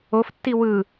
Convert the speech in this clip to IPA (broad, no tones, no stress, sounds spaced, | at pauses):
o f tː i w ɯ